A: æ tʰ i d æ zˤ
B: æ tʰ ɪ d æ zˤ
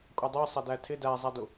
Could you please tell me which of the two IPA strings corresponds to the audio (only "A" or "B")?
B